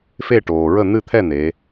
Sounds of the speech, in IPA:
fe˦˨ʈoː˩ɹə˦˨ n̪ɨ˦˨t̪ʰɛ˦˨ n̪e˩˧

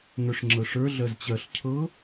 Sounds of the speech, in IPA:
ŋə˞ʂŋ͡ǁɤʂə˞ ɮɜzt͡ɕɜɬ cʰɤ

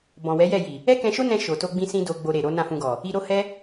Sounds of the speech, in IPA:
bɔ̃˨wɛ˨˦jɛ˦˨ji˨ | ɛ˦kɛ̃˧ʃo˦nɛ̃˧ ʃo˨to˧ɡ͡bĩ˧ sĩ˦do˧ɡ͡bo˧ ɾe˨ɾo˨˦ nã˦˨fũ˧ɡɔ˨ | i˧ɾo˦hɛ˦

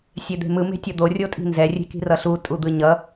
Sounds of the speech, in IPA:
sʲed̪e̤mɯ me̤tʲʌd̪o rʲotʼi̤nzɛ rʲe̤ki̤rʌɬu tʼud̪ɯɲʌ

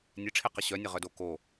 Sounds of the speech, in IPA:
nʲeʈ͡ʂʰeqə ɕœnʲəʁœdo ko

